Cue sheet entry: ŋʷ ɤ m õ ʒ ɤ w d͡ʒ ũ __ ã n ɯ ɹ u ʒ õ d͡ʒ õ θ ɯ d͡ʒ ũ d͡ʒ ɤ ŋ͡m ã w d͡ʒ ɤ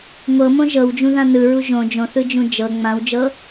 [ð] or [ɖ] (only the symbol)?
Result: ð